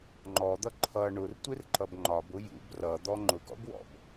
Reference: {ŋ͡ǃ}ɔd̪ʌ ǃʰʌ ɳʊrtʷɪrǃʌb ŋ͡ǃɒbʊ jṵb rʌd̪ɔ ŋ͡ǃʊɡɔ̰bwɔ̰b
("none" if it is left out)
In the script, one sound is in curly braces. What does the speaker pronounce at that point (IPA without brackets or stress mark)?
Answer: ŋ͡ǃ